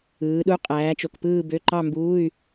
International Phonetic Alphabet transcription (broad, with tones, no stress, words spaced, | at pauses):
ɯː˨˦ɗu˧˥˧ qʼæː˨˦t͡ʃo˨kpɯː˥˧bø˧˥˧ ǃɑ˥˧mbuː˧˥˧y̯